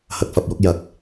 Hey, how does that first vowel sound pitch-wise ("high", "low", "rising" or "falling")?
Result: low